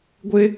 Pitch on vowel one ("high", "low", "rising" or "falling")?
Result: high